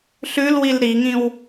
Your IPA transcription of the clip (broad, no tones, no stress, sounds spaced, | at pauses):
ɬ ʉ l w i l ɾ i ŋ ĩ w